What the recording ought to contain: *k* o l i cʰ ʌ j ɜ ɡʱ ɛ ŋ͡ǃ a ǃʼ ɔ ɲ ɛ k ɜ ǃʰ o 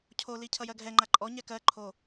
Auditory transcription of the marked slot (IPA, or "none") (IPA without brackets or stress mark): cʰ